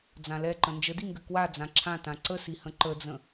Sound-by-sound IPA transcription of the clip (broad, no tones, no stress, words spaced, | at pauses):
d͡zãlɛǃə̃ nd͡ʒədiŋɡɘ kwa d͡zãǁʰãtã ǀəsihə̃ ǃəd͡zə̃